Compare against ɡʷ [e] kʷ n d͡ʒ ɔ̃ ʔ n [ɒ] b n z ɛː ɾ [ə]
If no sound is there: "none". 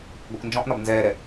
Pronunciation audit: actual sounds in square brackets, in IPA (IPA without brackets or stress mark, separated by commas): e, ɒ, ɛ